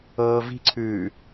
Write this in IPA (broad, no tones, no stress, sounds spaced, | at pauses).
ɤː v i̤ ǀʰ ʉː